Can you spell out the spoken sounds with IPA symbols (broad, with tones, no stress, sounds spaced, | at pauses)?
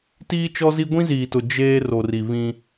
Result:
t iː˦ t͡ʃ ɔ˦ z i˦ ɡʷ ĩ˦ z iː˨ t ʊ˨ d͡ʒ eː˦ r o˨ r i˨ β ĩ˦